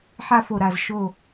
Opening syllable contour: falling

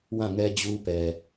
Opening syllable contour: falling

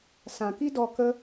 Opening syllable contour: low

